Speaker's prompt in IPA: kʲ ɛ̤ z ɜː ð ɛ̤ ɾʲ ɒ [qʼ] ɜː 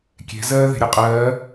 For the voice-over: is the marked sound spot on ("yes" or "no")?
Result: yes